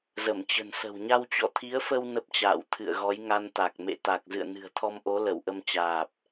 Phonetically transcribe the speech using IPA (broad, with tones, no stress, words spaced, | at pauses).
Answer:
zə˧˩mt͡ɕə̤˨˩nsə̤˨˩w ɲa˧wt͡ɕɔ̰˧˨t̪ʰi˨˦ə̯fə˧w nə˦˥p̚t͡ɕa̰ː˧˨w t̪ʰɨ̰˧˨ə̯ɣɔ˨˦jŋa˧nt̪a˨˩k̚ mḛ˧˨t̪a˨˩k̚ zɨ̰˧˨ə̯nɨ̤˨˩ə̯t̪ʰɔ˧mʔo˨˦ lə˧˩wʔə˧mt͡ɕaː˨˩p̚